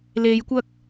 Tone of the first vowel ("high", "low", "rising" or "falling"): low